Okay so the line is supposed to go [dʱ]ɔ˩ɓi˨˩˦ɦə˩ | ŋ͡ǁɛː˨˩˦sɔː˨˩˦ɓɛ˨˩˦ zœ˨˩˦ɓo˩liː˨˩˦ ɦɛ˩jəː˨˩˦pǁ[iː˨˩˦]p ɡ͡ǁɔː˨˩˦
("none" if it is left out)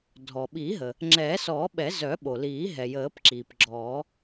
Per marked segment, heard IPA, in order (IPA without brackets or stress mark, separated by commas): dʱ, iː˩